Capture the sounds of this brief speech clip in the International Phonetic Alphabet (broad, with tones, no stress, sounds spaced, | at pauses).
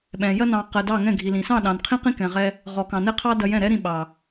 ɓ ɛ̃˨ j ɐ˧ n ɑ̃˨ q ɜ˨ d ɑ˦˨ ŋ ɛ̃˦˨ ɡʱ i˨ l ĩ˨ s ɑ̃˦˨ ɗ ɑ̃˨ n qʰ ĩ˦ q ĩ˦ k ɛ̃˨ ʁ ɛ˧ | ʁ ɔ˨ k ɑ̃˨ n ɛ˦ qʰ ɑ˦ d ɐ˧ j ɛ̃˦˨ ɾ ɛ˦ ɾ ĩ˧ ɓ ɑ˨